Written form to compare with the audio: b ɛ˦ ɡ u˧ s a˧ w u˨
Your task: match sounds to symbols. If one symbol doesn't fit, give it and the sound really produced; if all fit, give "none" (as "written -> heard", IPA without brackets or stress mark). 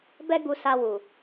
none